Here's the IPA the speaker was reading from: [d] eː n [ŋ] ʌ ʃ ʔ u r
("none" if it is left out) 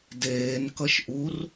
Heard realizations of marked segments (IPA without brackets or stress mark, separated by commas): d, k